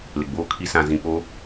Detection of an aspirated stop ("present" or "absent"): present